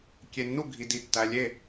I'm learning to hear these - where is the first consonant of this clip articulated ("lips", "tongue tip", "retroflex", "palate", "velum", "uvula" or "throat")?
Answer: velum